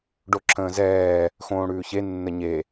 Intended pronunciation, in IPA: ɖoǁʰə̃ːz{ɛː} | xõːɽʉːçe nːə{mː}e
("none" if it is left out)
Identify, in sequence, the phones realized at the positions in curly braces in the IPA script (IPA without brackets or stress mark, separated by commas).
ɛː, ɲ